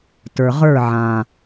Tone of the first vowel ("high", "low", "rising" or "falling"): low